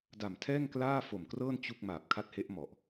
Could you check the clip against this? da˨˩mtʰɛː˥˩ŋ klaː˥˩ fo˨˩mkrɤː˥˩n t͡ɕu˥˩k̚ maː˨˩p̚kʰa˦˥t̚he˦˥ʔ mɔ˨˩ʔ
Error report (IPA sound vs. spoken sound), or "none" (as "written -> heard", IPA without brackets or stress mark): none